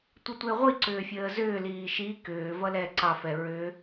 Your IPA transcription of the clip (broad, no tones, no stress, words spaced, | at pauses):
tʷətʷeʁʷi ǀʏːfʲəːzʏː liːʃi kʏː vʌlɛːǀɑ fɛɹʏ